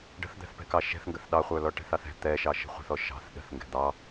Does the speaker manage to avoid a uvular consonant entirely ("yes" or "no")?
no